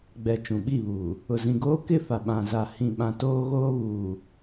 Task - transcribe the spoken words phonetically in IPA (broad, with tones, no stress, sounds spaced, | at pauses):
ɡ͡b ɛ˨ t͡ʃ ũ˨ ɓ i˦˨ β uː˨ | ʊ˨ z ĩ˨ ɡ oː˦ k ɪ˦˨ f a˨ ɓ ã˨ z a˨ h ĩ˨ ɓ ã˨ t oː˦ ɣ oː˦ β uː˨